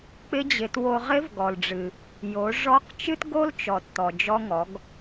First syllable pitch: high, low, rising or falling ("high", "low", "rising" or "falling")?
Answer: rising